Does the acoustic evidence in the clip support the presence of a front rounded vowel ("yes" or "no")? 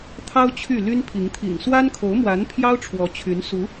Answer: yes